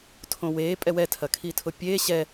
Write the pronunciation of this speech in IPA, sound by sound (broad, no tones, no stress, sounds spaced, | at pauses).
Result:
tʰ õ w eː pʼ ɛ w ɛ tʰ ɐ kʰ i tʰ ʊ pʲ eː ɕ ɛ